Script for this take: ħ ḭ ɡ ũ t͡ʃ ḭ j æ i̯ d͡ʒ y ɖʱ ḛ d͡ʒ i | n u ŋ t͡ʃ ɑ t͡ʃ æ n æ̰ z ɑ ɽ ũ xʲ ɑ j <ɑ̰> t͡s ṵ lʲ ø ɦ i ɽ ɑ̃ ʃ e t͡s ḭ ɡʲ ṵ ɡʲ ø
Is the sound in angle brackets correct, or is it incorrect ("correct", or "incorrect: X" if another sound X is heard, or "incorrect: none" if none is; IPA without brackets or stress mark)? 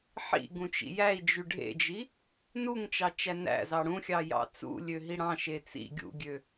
correct